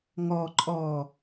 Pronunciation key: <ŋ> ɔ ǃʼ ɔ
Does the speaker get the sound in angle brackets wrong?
no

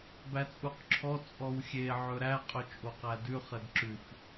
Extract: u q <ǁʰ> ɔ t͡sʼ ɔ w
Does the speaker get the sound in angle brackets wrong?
no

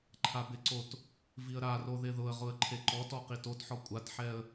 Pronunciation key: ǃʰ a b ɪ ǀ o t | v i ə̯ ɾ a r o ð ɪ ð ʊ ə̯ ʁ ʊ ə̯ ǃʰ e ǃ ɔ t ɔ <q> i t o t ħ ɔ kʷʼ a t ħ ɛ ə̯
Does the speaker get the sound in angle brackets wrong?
no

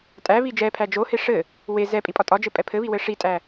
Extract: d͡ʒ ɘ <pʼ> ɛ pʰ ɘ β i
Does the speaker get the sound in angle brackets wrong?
no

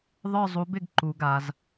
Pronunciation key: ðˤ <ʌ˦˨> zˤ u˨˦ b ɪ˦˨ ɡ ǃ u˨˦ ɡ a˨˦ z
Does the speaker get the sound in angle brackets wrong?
yes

